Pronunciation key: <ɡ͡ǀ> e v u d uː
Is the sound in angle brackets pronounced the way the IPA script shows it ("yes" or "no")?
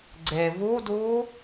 yes